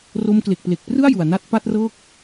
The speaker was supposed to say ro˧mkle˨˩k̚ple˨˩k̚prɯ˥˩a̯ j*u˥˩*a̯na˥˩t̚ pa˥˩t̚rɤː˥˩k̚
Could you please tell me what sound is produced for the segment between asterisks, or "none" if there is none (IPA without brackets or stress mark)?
u˨˩